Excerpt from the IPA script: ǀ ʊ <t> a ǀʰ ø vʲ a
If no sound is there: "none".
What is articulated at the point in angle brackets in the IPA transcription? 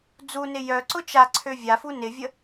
t͡ʃ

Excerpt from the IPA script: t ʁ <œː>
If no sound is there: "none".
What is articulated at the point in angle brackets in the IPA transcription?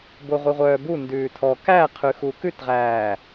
æː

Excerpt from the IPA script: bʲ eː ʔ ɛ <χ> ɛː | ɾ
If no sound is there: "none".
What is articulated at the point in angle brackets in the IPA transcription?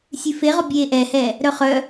h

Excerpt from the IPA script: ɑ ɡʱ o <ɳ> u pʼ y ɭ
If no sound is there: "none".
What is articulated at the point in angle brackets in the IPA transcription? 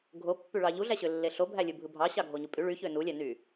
ɲ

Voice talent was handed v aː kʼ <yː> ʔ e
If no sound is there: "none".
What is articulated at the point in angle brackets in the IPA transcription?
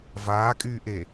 yː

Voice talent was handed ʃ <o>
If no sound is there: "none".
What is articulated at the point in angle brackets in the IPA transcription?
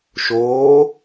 oː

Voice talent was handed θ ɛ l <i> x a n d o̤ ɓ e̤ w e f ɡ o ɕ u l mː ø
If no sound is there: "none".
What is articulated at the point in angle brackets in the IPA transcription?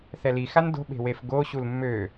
i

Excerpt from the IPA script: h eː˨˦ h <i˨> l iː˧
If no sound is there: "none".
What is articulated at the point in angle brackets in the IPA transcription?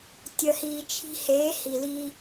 i˨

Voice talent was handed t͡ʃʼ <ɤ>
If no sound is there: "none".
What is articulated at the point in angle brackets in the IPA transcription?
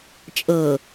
ɤ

